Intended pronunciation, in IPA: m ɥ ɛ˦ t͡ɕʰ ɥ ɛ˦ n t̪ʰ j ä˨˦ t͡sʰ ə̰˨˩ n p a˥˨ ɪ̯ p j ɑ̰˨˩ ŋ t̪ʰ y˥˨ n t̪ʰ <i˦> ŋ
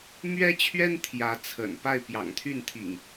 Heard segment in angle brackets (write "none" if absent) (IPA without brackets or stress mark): ḭ˨˩